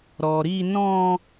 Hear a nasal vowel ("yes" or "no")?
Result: yes